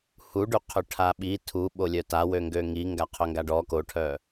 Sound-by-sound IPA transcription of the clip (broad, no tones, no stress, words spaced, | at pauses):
huɖy qʰøʈʰaɓi tʰu ɓolʲœta wøŋɡøŋi ŋɡaqʰœŋɡaɖɔ koʈʰœ